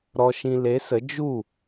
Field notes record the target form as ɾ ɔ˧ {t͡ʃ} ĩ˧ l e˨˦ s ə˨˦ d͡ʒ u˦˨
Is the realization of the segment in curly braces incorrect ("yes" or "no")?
yes